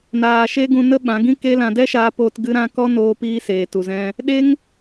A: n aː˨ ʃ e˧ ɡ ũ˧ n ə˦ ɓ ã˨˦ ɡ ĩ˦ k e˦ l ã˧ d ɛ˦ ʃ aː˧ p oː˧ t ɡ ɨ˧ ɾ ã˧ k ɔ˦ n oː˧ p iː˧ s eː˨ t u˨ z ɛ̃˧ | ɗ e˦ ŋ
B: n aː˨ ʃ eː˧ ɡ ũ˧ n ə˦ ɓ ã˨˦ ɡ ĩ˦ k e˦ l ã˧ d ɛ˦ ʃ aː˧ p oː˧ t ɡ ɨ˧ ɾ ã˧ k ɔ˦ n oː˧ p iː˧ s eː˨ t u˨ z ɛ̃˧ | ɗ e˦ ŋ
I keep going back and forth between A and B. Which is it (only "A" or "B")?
A